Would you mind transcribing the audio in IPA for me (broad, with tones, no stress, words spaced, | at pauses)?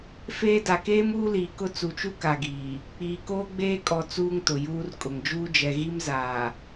feː˦ da˨keː˦m uː˦liː˨kʊ˦ t͡su˨t͡ʃu˦ ka˨ɡiː˨ | k͡piː˨koː˦ɡ͡beː˦ kʼɔ˨ t͡suː˦ŋtʊ˨juː˦r kʼʊ˨ŋd͡ʒuː˦ d͡ʒɛ˨ɣi˦mzaː˨